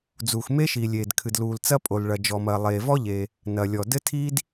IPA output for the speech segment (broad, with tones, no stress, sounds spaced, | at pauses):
d͡z uː˩ x m e˥ ʃ iː˩ lʲ eː˩ d kʰ ɨ˩ d l uː˩ l t͡s ɐ˥ pʼ o˩ l ɭ ɐ˩ d͡ʒ ɔ˩ m ɐː˩ lˠ eː˩ v ɔ˥ ʎ e˩ | n ɐ˩ lʲ ɔ˩ d ɘ˥ tʰ iː˥ d